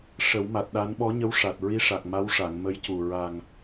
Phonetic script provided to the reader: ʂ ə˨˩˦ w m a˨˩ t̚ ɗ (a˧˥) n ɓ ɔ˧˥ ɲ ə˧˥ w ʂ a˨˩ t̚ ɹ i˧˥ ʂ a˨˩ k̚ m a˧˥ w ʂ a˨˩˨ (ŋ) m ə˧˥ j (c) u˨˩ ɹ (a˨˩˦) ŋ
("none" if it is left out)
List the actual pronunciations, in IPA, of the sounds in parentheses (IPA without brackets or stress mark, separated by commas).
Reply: a˧˥, ŋ, c, a˨˩